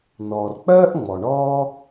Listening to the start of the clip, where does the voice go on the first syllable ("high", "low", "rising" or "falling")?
low